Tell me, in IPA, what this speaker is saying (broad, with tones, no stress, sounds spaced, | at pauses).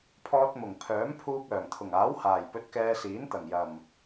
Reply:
pʰ ɔː˧ t̚ m ʊ˨˩ ŋ pʰ œː˨˥ m pʰ uː˧ k̚ œː˨˩ ŋ t̪ʰ ʊ˨˩ ŋ aː˨˥ w h aː˨˩ j p ɵ˧ t̚ k ɛː˧ s iː˨˥ n t̪ ɐ˨˩ ŋ j ɐ˨˩ m